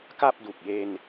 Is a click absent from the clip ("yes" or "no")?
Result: yes